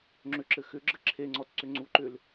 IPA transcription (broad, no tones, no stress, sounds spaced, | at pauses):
ŋ͡ǁ ʏ ǁ ɘ x ʏ ɡ͡ǁ ɘ ǁʰ e ŋ͡ǀ ɔ t ǀ ʏ ŋ͡ǀ u ǃ ʏ l